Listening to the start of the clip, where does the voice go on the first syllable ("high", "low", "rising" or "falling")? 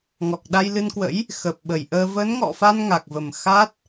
low